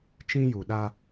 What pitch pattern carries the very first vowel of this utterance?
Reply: high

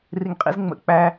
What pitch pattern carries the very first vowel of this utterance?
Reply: low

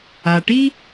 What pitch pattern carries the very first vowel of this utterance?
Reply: low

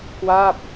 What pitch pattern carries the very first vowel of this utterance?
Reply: falling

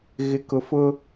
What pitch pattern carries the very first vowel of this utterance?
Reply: low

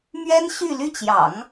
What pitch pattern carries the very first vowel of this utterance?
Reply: high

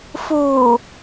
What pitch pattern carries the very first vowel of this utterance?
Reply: low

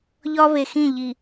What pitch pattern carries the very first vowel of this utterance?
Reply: high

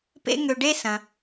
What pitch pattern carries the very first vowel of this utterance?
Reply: high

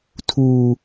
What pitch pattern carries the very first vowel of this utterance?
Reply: low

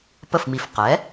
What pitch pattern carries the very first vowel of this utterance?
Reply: falling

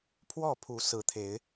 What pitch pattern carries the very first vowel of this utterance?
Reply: falling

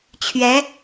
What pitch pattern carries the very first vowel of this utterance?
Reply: rising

